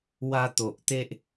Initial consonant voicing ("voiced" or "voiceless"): voiced